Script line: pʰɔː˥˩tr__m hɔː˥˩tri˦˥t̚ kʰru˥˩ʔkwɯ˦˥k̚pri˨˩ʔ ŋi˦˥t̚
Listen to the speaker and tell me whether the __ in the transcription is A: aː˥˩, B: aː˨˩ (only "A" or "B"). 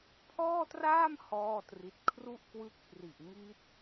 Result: A